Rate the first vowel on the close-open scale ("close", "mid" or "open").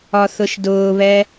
open